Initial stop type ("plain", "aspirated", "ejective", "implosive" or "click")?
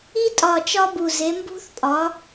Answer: ejective